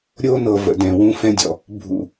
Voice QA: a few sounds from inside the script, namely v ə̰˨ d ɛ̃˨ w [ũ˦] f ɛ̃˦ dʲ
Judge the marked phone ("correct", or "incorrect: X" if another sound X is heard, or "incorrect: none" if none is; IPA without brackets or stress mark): correct